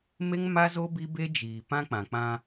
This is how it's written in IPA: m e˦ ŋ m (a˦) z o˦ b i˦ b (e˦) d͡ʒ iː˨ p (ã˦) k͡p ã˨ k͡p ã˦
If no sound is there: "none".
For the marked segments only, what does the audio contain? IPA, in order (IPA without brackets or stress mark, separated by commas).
a˦, e˦, ã˦